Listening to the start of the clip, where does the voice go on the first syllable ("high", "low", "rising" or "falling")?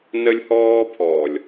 high